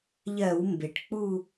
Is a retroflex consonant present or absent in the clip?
present